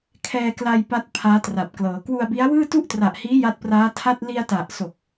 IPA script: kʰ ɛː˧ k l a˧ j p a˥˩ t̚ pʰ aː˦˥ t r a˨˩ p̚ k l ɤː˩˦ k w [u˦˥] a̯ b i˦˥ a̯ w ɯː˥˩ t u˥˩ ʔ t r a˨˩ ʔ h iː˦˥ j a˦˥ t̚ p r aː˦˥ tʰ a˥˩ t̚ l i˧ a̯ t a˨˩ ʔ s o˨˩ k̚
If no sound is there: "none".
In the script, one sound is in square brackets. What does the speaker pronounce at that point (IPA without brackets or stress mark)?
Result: u˧